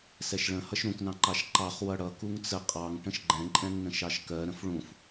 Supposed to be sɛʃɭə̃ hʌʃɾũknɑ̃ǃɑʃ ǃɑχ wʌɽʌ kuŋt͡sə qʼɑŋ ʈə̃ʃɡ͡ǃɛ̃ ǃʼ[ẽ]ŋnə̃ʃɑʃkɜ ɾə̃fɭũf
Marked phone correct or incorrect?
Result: incorrect: ɛ̃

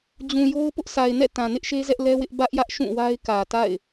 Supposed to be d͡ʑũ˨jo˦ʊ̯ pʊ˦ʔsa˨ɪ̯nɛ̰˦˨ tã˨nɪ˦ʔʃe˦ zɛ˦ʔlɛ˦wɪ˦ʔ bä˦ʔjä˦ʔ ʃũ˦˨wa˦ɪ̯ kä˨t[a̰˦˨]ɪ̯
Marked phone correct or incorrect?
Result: correct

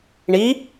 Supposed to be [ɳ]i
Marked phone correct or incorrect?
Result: correct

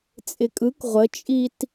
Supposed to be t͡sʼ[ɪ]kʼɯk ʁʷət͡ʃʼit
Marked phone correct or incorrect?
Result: correct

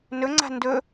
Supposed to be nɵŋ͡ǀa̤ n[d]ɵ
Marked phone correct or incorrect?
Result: correct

